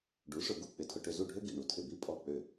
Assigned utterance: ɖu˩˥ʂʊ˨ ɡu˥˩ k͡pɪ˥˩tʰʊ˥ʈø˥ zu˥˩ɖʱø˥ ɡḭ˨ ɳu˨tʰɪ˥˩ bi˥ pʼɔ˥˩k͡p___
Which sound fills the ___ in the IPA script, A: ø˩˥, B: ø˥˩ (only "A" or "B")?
B